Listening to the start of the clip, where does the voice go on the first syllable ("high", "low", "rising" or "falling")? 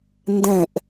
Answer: falling